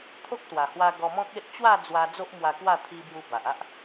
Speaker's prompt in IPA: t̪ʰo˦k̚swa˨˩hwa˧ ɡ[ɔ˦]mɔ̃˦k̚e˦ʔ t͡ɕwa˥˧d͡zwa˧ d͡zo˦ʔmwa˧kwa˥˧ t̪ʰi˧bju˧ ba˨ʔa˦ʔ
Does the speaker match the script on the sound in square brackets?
no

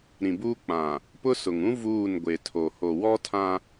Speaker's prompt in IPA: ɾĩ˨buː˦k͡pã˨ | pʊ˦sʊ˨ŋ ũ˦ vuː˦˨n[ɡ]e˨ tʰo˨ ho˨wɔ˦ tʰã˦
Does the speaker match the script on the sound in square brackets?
no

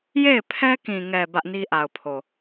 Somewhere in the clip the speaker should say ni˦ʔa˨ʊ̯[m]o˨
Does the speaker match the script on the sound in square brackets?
no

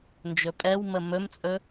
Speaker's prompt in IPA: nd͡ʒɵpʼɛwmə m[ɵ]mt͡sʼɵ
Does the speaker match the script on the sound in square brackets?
yes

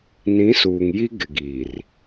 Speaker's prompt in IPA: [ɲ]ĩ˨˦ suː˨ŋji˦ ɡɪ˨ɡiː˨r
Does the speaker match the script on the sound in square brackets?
no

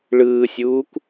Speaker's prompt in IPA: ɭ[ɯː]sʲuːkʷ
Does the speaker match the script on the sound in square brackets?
yes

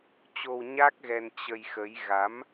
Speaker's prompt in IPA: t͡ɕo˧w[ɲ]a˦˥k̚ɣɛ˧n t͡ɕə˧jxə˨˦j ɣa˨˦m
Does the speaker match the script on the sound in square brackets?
yes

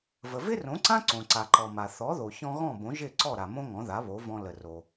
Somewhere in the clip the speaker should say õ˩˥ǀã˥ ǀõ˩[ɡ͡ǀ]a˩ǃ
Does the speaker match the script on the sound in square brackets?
no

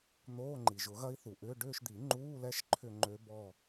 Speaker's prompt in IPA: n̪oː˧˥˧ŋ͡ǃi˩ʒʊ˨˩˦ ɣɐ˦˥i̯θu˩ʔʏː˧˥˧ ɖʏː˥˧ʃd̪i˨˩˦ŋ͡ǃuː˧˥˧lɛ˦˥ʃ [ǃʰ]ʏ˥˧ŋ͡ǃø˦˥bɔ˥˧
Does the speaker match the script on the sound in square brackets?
yes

